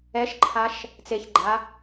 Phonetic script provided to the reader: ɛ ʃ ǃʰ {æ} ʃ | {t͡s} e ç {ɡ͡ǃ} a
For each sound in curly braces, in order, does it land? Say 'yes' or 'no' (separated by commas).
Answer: no, yes, yes